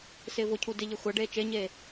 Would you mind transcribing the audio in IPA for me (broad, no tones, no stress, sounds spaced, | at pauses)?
s ɪː v ʊ cʰ u d ɪ ʎ e xʷ a ɖ eː t͡ʃ e ɲ eː